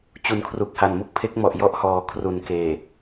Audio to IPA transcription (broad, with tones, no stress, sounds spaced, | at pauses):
t͡ɕ u˨˩ n kʰ r u˨˩ k̚ h a˨˩ n m u˥˩ k̚ pʰ e˦˥ k̚ m ɔ˨˩ ʔ j ɔ˥˩ ʔ h ɔː˨˩ kʰ r u˨˩ n k eː˨˩